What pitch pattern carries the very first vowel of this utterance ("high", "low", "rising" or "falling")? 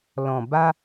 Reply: low